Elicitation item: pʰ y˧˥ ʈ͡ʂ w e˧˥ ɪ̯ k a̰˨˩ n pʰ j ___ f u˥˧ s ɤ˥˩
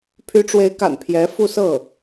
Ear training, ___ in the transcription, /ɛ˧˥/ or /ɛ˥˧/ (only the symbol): ɛ˧˥